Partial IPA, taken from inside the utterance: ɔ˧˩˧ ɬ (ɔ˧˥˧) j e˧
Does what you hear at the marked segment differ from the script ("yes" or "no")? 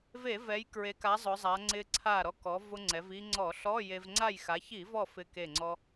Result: no